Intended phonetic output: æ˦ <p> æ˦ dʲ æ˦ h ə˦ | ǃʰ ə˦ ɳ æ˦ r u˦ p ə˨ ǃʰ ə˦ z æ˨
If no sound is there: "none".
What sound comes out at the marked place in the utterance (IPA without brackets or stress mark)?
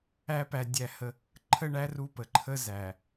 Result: p